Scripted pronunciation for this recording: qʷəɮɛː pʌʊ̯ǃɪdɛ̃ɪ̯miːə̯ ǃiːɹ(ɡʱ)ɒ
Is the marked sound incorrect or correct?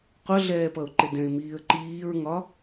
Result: incorrect